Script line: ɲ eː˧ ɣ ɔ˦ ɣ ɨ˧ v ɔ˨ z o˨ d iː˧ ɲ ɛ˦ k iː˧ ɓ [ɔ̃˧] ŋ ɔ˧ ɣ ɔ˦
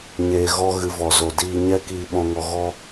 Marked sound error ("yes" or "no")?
no